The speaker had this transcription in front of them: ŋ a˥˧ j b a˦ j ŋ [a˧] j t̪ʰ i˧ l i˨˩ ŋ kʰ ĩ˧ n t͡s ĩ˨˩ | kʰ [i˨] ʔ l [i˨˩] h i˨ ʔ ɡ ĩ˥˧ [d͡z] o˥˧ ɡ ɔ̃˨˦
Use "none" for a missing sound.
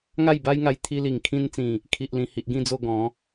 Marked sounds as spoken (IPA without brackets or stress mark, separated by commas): a˧, i˨, ĩ˨˩, d͡z